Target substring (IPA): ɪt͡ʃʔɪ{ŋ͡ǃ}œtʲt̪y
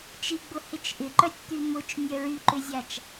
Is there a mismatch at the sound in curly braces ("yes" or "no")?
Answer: yes